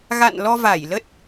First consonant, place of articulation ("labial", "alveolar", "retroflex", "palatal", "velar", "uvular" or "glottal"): velar